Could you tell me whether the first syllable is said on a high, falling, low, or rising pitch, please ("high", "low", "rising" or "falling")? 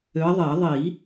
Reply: rising